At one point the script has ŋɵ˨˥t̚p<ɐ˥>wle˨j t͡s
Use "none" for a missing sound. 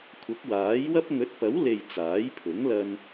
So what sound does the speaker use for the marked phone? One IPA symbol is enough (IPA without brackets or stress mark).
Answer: ɐ˨˥